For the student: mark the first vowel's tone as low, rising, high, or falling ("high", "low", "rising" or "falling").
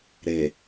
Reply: low